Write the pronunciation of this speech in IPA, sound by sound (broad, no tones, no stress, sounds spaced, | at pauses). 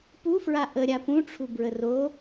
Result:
p u f ɹ a ʔ ə ɾʲ a p ũ ʈ͡ʂʰ u b ɹ ə r o